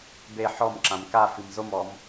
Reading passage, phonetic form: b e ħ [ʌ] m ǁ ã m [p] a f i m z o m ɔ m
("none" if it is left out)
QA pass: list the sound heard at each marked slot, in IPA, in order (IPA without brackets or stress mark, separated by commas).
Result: ɔ, k